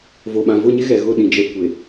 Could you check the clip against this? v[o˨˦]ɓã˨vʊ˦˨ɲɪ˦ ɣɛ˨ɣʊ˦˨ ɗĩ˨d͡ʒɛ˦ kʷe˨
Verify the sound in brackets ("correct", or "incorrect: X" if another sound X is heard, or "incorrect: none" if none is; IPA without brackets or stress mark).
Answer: incorrect: o˨